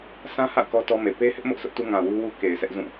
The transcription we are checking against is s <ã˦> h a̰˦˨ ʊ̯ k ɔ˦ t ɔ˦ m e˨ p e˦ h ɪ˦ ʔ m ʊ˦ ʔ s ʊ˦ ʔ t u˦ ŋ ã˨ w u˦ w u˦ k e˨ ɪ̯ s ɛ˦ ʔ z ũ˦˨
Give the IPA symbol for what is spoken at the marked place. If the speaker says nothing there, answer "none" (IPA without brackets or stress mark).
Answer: ã˦